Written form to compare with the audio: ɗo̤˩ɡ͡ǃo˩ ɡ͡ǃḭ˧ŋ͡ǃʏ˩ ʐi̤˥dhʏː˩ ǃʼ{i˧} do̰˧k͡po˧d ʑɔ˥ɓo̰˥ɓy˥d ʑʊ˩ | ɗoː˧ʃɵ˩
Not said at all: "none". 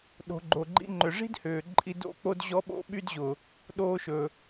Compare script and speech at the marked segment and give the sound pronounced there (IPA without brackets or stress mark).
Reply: i˧